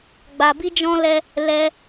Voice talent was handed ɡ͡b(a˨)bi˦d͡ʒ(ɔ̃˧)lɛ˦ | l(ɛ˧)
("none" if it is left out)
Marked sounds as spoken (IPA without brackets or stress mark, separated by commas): a˧, ɔ̃˦, ɛ˦